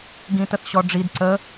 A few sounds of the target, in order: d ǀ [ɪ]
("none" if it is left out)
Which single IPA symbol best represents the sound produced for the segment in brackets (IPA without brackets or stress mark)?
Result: ə